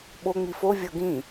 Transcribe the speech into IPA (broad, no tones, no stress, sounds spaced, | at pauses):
ɓ o ŋ͡m i f o vʲ ɤ ɡ ĩ